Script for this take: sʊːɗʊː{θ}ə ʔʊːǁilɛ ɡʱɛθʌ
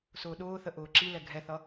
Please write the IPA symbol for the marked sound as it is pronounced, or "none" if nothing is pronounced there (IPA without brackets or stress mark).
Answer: θ